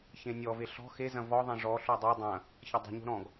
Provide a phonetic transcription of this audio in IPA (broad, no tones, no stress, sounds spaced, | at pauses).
ç ẽ nʲ ɔ v e ɬ ɔ̤ x e z ɐ̃ v ɔ ðˤ ẽ ʐ ɔ ɬ o dˤ e dˤ ɐ̃ | ç ɐ dˤ e̤ ɲ o̤ ɾ ɔ̃ ɡ